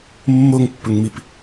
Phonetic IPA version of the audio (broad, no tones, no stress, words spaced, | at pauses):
mːoŋpːɵŋmip